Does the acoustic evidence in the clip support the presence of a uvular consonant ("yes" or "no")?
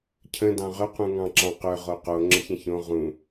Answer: yes